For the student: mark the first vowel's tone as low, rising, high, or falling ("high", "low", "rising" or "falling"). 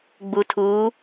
low